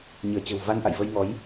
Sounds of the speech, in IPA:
ɲ ɨ˧˩ ə̯ t͡ɕ ə̤˨˩ w v a˧ n ʔ a̰˧˨ j v ə˧ j ŋ ɔ˨˦ j

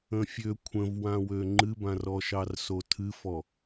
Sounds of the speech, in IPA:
ə̃ fʲ ø kʷʰ ə̃ v w ã w ø ŋ͡ǃ ɨ b ã r ɔ ʃ ɑ r s o tʰ ɨ f ɔ

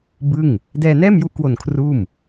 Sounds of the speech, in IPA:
b ɯ˥˩ ŋ | d ɛː˧ n ɛː˥˩ m j u˦˥ ʔ k w o˨˩ n kʰ r uː˥˩ m

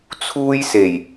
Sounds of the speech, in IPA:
t͡sʰ uː˥ j s e˨˩ j

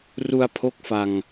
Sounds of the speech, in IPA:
r u˧ a̯ pʰ o˦˥ k̚ f a˧ ŋ

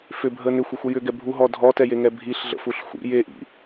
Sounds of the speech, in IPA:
f ʏ bʱ ə n ʏ xʷ i xʷ ə j ʏ ɡ ɛ bʱ u ɦ ɔ dʱ ɔ t ɛ j e ŋ ɛ bʱ i ɬ ɮ ə̰ f u ɬ xʷ ḭ j e ʔ ḭ

